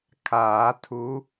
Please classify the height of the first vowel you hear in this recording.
low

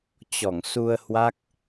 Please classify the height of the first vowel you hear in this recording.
mid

